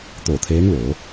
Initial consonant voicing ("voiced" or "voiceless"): voiceless